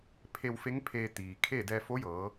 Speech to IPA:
pʰe˧wfe˧˥ŋpʰeː˧ t̪iː˩kʰe˥˨ dɛː˧fo˧˥jɤː˩˧

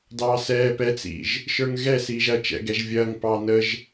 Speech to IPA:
dɑːsɛː pɛt͡sḭʒ | ʃə˞ŋɣɛ siːʒɐt͡ʃɛ̰ ɡɛʒvʲɐːŋ pɑːnəʒ

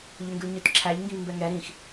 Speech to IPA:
ʎøŋɡʉlɲøtǁʰæʎ ŋɡĩvmbɛŋɛ ɾĩx

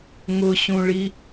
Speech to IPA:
ŋʊɕũɭi

